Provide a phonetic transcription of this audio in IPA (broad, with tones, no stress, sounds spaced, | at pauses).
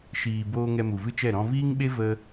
ʃ iː˨ b oː˧ ŋ ɛ˧ m u˨ v ɨ˦ t͡ʃ ɛ˦˨ ɾ ɔ̃˧ v iː˦ ŋ ɓ e˦ v ə˦